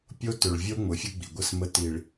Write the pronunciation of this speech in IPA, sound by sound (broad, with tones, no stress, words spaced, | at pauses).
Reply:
pʲo˦tʏ˨ɭvʲo˦ ŋ͡mʊ˨fʲʊ˦ɡ͡bḭ˨ɡʷə˦˨s mə˦ti˨ɭ